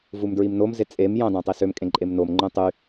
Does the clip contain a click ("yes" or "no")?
yes